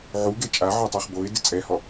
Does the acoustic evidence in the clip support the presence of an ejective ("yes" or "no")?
yes